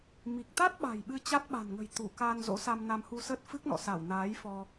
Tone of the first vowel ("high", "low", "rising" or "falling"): low